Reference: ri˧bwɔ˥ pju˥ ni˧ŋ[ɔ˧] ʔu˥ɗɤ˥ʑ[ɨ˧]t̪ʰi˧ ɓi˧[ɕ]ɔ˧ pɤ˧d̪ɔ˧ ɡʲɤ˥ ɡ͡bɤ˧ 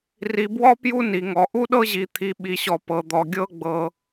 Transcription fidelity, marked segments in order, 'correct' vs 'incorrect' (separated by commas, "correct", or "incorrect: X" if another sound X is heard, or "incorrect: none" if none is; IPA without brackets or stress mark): correct, incorrect: i˧, correct